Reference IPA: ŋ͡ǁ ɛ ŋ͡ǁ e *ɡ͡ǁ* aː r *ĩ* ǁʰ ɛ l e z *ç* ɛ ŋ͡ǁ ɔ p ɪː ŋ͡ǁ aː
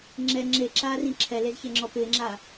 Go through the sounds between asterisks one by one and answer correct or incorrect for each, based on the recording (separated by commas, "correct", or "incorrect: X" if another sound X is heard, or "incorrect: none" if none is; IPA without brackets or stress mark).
incorrect: ǁ, correct, correct